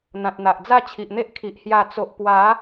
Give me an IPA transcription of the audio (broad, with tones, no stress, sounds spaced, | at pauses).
n̪ ã˨ t̚ n̪ a˨ ʔ d͡z a˥˧ t͡ɕʰ i˨ ʔ n̪ e˦ ʔ kʰ i˨ ʔ h j a˨˩ t͡s o˨ ʔ p w a˨˦